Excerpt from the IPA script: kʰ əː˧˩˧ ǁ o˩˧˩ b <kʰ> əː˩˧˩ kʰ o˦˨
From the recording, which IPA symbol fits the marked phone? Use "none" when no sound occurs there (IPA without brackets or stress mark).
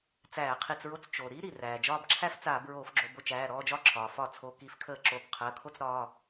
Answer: qʰ